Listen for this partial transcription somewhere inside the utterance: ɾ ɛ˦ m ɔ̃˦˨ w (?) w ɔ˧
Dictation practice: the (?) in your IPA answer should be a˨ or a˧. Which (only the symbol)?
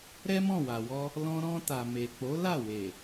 a˨